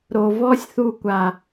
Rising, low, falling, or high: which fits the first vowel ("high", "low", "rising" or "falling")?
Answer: low